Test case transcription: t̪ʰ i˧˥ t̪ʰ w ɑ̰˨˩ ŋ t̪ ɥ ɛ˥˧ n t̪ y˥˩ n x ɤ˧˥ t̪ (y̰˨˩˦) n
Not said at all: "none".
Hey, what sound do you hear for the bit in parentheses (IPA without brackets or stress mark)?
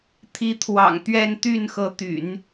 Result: y̰˨˩˦